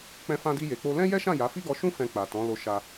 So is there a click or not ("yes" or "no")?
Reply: no